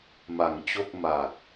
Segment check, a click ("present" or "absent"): absent